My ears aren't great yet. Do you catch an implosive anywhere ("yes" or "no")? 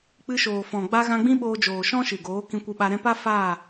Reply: yes